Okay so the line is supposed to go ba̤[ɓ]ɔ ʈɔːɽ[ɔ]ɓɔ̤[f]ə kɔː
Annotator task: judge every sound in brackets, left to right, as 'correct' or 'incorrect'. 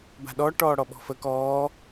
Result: incorrect: ɗ, correct, correct

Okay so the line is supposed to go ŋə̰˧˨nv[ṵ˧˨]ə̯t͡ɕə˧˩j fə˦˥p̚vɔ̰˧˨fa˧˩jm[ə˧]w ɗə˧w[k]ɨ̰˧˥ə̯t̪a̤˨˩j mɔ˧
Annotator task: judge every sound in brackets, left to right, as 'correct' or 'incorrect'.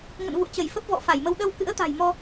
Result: correct, correct, correct

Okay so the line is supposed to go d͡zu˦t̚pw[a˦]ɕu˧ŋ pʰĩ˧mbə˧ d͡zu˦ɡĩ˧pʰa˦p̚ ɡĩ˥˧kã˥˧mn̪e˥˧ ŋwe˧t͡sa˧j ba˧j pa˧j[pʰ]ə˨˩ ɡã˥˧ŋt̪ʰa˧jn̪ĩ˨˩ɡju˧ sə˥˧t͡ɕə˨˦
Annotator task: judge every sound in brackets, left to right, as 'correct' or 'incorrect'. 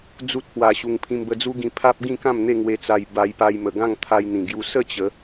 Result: incorrect: a˧, incorrect: m

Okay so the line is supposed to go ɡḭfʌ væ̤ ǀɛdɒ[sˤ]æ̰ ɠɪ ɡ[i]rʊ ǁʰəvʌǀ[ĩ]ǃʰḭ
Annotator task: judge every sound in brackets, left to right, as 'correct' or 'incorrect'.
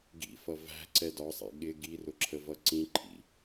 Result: correct, correct, correct

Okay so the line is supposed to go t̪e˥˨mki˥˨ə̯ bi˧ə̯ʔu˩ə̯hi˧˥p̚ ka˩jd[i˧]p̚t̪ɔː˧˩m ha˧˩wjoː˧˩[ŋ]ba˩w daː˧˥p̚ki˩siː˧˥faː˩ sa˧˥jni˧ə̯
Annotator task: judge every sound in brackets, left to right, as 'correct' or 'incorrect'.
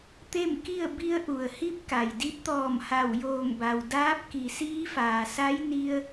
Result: incorrect: i˧˥, correct

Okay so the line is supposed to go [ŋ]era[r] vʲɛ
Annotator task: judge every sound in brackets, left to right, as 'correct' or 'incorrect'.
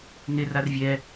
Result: correct, correct

